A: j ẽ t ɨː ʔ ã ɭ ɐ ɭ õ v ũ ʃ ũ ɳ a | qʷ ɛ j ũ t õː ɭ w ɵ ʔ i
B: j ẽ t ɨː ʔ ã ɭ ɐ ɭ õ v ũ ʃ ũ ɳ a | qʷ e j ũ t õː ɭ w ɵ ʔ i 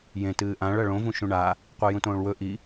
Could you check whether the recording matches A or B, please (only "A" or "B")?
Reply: B